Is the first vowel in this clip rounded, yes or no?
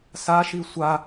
no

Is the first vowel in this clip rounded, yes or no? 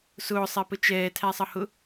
yes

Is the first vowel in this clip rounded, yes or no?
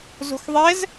yes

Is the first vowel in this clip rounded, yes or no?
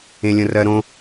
no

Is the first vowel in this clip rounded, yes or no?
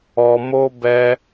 yes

